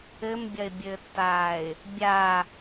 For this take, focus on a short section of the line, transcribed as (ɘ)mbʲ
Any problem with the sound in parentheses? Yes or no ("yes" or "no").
no